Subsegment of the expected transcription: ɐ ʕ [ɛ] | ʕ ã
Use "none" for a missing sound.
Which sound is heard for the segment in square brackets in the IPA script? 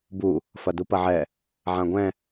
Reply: ɛ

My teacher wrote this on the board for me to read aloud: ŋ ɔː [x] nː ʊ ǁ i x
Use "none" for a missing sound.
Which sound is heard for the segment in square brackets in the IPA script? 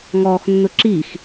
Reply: x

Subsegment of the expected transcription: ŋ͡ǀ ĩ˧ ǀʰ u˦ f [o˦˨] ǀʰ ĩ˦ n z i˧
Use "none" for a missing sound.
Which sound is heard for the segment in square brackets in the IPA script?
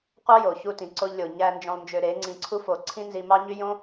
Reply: o˧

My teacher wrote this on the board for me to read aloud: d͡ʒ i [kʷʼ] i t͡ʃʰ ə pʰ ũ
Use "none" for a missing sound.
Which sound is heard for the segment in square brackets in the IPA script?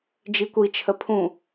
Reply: kʷ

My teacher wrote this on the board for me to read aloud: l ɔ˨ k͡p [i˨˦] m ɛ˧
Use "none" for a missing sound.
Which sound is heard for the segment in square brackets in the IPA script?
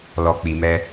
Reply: i˨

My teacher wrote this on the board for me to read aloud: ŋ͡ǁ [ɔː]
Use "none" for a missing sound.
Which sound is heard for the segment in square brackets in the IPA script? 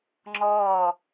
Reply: ɔː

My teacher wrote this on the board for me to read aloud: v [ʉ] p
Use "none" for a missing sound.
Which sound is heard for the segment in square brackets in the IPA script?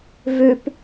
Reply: ʉ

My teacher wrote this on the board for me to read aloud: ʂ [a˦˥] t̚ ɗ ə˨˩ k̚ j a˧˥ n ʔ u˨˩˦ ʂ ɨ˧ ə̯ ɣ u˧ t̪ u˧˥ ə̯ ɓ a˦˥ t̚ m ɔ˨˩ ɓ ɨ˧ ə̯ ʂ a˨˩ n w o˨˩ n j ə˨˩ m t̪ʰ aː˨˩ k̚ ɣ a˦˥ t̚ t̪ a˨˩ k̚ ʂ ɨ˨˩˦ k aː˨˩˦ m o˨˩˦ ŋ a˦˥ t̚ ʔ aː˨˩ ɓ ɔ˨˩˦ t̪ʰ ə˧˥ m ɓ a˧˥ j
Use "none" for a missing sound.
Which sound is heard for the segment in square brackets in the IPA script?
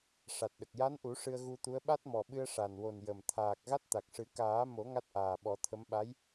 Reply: a˨˩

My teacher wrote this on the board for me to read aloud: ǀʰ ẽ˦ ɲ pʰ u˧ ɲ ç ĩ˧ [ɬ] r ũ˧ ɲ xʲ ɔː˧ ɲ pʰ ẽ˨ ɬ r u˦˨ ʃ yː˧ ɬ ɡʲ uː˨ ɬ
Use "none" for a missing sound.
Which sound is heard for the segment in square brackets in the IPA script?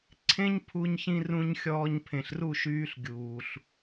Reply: none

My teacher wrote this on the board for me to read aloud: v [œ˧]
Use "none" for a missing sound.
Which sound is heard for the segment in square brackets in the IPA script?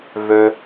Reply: ø˧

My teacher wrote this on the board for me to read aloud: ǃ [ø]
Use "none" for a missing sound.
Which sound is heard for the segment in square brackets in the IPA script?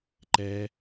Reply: ɛ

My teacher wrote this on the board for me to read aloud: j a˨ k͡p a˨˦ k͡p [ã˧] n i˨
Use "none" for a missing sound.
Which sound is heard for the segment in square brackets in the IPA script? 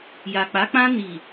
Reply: ã˧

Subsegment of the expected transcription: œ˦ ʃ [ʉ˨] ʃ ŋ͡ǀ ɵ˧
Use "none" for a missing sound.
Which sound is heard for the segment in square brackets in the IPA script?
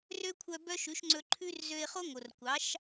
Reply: ʉ˨˦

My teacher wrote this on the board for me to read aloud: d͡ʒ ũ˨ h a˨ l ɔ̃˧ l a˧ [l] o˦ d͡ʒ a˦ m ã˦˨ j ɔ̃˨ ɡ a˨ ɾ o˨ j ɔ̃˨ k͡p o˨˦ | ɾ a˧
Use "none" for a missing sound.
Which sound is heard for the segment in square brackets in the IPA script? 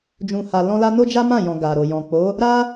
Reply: n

